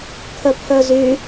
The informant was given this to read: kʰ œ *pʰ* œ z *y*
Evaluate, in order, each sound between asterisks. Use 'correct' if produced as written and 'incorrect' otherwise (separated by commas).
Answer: correct, correct